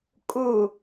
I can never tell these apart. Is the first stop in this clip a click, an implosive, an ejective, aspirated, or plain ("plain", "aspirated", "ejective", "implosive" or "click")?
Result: ejective